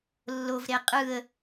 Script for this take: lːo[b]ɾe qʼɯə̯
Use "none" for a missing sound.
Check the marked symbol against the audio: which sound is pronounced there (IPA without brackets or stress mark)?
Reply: v